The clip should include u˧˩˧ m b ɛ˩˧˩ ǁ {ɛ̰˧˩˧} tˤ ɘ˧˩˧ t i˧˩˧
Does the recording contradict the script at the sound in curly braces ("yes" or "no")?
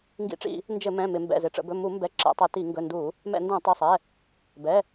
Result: no